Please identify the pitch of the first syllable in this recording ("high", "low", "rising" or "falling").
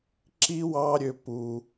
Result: high